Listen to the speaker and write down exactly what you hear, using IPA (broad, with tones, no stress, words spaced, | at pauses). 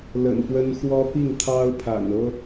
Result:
lə̰˨˩npwə˦n xwɔ˦pi˥˨ŋt̪ʰɑ˦ʊ̯ pʰa̰˨˩nɤ˦